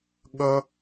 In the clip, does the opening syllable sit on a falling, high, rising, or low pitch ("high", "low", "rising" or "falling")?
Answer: high